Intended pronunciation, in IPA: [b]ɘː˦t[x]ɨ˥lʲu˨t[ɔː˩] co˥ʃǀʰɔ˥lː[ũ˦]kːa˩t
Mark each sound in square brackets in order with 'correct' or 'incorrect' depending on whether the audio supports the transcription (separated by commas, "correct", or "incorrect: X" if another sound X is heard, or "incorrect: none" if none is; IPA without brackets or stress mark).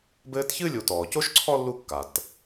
correct, incorrect: ç, correct, incorrect: u˦